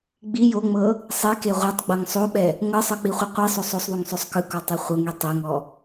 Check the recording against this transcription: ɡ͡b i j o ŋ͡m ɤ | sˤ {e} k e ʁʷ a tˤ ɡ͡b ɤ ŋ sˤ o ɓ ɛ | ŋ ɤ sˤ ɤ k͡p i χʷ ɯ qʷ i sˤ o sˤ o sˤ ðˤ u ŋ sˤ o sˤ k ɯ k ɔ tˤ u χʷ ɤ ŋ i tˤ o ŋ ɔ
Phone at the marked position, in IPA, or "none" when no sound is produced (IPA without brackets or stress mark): e